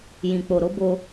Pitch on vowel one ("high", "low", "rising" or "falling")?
low